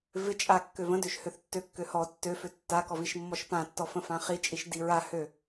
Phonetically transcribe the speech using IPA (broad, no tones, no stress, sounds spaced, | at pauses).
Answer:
v ɪ t͡ʃʼ a kː ø v ə̃ d ø ʃ h ø θ tː ø kː ø h ɔ tː ø f ø tː a k ɔ v i ʃ mː ɔ ʃ p ã tː ɔ f ə̃ f ã χ i t͡ʃʼ i ʃ d i ɹ a h ø